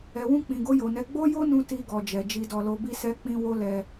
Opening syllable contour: low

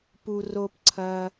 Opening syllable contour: low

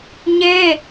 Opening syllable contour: high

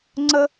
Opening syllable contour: high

